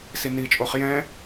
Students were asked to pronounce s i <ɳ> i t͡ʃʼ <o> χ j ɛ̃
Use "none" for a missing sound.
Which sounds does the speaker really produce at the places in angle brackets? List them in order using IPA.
n, o

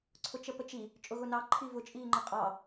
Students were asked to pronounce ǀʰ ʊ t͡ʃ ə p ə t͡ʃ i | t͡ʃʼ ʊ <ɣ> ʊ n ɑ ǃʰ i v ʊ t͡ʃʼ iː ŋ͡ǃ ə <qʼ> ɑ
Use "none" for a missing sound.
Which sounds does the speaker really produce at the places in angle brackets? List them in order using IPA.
ɣ, qʼ

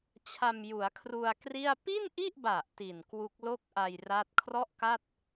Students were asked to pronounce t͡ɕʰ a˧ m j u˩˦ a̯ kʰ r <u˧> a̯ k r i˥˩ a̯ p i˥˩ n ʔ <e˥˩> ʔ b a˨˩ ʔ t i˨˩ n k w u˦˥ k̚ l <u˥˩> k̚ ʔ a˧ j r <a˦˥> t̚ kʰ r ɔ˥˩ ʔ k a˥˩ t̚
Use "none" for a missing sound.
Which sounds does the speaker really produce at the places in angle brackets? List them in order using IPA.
u˧, i˥˩, o˥˩, a˦˥

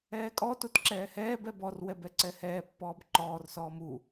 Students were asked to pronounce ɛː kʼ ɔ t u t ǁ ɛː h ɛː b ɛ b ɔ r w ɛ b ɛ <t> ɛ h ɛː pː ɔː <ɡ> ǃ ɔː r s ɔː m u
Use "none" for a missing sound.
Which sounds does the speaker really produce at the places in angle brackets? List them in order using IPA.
ǀ, b

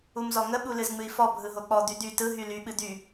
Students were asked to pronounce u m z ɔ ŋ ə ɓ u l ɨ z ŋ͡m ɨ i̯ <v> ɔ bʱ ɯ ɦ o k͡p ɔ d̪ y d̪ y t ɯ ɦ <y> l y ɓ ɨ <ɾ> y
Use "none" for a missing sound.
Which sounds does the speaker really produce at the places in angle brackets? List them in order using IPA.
f, y, d̪

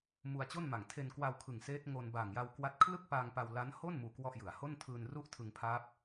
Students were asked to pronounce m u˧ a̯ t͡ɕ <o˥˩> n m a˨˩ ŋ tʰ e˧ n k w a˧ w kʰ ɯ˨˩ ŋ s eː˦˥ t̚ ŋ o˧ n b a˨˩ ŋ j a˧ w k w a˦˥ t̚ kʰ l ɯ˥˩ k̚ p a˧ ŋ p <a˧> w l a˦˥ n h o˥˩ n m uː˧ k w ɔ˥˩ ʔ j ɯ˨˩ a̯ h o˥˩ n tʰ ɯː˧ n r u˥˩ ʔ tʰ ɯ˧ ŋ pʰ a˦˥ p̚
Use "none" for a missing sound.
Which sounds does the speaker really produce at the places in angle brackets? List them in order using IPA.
o˥˩, a˧

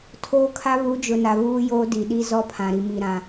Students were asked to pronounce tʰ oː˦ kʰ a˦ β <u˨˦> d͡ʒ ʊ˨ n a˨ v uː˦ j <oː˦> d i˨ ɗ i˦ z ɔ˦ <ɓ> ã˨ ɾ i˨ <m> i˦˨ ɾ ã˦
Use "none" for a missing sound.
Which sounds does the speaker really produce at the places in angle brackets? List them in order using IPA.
u˨˦, oː˦, pʰ, m

